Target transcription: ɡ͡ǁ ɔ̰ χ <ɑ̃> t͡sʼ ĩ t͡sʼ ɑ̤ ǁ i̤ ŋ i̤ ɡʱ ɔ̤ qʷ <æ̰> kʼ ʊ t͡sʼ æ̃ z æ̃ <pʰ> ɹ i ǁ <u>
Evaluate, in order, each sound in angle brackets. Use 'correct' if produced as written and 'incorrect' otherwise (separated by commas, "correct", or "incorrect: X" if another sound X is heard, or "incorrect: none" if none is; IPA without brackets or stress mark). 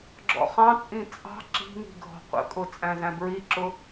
correct, incorrect: ə̰, incorrect: b, incorrect: ʊ